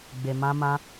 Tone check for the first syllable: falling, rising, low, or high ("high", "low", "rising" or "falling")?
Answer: low